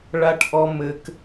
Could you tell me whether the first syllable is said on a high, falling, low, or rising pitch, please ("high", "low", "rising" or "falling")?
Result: high